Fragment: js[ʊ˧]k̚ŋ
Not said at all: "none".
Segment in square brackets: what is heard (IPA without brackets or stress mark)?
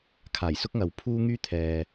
ʊ˥